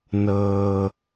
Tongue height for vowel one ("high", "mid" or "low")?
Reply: mid